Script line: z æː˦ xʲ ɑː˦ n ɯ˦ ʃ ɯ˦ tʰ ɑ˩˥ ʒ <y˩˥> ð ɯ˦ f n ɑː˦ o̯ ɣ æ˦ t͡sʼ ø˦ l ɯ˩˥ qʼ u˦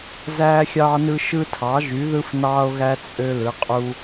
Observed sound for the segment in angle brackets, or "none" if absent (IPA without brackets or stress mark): y˩˥